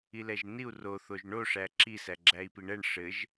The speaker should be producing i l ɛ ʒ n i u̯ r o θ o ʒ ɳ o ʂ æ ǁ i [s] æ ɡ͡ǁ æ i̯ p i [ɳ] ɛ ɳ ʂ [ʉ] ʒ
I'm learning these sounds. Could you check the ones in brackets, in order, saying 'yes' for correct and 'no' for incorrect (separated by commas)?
yes, yes, no